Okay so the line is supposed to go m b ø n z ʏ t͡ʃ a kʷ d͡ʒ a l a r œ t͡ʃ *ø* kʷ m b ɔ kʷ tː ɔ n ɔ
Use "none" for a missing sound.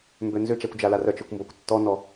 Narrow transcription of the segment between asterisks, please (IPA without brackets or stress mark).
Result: ø